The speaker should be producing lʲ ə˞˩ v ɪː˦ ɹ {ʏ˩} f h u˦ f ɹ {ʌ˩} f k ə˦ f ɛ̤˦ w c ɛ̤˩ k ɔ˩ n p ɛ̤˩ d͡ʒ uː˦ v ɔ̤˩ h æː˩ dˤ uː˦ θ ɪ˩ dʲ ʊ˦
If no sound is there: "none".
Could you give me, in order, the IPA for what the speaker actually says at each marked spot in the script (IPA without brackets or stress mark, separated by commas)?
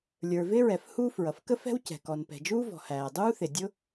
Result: ɛ˩, ʌ˩